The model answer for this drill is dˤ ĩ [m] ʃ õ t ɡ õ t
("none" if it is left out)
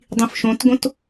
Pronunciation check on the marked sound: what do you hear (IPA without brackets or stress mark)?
f